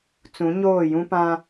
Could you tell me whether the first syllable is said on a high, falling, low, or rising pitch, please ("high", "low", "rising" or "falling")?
rising